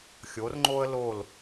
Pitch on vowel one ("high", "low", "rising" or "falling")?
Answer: rising